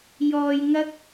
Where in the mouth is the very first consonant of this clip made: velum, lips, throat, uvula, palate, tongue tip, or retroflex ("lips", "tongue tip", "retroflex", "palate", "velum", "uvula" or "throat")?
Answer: palate